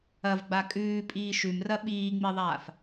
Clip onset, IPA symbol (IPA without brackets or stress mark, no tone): ɐ